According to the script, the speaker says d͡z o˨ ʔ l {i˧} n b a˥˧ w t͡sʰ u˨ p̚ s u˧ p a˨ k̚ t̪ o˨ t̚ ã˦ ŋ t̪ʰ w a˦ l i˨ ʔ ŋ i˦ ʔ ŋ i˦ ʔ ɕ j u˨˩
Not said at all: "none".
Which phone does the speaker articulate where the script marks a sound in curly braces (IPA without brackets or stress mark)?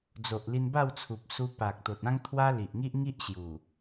i˧